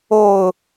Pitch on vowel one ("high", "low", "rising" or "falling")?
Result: low